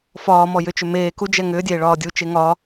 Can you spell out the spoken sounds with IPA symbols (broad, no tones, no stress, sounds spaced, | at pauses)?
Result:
f ɒː m ɔ j ʏ t͡ʃ ʏ m eː k u d͡ʒ ɛ ŋ ʏː dʲ eː ɭ ɒː dʲ u t͡ʃ e ŋ ɒ